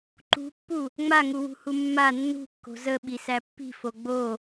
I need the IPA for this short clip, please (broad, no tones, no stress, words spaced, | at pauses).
ǃṳpːu | ŋ͡maŋuwṳhu mːa nːṳkːo̤ zəɓisæ pːi̤fo ɡ͡bo